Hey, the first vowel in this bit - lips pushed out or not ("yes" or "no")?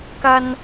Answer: no